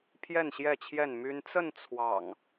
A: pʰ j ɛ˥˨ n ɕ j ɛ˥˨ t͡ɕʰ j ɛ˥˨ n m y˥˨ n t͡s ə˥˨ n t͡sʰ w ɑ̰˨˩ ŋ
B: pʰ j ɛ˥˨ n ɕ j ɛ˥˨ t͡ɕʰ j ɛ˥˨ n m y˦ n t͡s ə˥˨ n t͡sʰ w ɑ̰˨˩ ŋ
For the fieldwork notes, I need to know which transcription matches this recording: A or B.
B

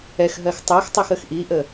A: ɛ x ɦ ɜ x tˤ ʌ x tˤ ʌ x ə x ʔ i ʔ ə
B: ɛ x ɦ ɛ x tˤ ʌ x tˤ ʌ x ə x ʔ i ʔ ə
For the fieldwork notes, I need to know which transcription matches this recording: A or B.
A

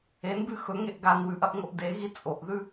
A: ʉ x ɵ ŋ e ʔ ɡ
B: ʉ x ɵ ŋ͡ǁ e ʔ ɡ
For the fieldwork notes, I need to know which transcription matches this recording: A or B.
A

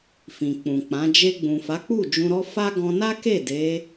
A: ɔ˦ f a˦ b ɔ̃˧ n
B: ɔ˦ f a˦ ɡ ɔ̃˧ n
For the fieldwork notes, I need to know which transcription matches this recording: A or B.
B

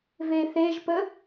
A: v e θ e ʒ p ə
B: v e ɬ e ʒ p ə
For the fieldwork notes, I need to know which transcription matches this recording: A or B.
A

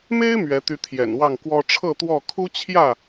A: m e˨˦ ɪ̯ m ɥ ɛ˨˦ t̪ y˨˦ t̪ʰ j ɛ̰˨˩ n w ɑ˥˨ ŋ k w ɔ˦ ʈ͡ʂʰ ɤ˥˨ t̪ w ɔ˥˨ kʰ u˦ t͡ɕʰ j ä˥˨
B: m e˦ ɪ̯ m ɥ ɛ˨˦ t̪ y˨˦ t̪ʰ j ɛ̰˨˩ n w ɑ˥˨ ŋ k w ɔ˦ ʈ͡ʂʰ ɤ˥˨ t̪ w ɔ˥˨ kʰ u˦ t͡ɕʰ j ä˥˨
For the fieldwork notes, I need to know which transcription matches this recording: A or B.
B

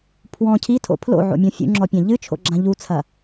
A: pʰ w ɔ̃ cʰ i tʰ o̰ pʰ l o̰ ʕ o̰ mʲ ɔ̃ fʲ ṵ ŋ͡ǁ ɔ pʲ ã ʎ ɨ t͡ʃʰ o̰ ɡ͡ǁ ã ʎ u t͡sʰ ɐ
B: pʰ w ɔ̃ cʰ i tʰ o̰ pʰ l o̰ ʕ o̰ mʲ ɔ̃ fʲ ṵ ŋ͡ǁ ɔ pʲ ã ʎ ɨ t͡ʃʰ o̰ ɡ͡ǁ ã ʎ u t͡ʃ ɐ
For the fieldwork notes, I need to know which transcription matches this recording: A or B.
A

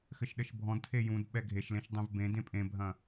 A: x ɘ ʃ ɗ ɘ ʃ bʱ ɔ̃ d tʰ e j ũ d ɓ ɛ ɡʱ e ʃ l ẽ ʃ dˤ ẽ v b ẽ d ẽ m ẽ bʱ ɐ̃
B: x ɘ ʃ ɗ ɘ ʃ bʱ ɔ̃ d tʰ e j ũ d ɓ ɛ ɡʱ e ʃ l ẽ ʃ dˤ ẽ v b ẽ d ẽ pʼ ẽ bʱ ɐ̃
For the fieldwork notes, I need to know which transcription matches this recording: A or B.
B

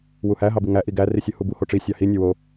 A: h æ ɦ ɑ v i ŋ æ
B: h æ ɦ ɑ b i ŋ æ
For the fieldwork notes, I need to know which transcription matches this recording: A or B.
B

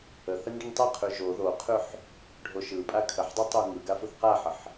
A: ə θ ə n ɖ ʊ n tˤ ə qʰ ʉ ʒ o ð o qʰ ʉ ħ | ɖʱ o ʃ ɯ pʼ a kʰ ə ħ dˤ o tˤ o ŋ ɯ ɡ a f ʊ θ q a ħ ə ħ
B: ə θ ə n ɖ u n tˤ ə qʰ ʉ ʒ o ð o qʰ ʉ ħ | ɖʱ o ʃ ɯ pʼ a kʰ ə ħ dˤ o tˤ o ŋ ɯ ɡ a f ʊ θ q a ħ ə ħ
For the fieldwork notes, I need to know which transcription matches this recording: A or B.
A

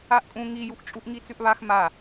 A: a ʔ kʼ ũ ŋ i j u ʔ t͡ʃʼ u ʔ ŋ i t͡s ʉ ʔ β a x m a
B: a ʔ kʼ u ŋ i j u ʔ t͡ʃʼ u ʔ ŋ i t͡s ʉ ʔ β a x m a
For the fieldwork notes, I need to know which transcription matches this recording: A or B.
A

